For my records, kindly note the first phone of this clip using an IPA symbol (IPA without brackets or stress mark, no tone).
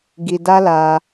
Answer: ɡ